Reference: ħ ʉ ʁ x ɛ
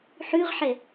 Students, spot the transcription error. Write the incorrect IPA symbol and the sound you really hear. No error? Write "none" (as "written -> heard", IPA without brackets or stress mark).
x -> ħ